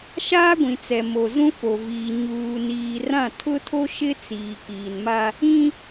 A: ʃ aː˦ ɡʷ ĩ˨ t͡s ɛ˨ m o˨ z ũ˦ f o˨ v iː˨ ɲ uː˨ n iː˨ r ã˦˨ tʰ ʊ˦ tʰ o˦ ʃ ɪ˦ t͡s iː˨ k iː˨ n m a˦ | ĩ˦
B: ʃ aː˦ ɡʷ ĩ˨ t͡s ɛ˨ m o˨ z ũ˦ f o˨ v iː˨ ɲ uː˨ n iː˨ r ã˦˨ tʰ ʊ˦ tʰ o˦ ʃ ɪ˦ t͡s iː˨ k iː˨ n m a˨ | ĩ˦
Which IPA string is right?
A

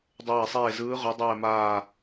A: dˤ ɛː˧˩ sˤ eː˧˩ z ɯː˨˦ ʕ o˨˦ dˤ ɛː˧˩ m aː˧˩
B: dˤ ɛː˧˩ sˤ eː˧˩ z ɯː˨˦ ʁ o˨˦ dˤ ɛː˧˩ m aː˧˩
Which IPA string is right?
B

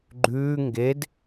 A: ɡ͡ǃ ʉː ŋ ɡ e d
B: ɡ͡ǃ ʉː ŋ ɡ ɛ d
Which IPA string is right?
A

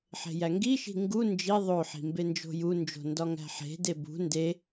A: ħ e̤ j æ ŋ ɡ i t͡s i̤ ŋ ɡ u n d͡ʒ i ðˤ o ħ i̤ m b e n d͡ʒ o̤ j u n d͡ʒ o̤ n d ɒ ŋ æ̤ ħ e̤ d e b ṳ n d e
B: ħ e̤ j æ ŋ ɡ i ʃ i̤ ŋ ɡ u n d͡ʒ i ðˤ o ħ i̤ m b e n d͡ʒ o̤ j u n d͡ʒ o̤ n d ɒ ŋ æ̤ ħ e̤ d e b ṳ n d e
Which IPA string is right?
B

